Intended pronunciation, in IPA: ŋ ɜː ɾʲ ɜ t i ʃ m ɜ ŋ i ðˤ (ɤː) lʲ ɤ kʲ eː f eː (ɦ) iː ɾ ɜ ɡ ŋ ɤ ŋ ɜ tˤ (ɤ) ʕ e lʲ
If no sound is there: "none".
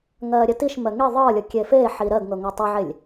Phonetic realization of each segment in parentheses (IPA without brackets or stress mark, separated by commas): ɤː, ħ, ɤ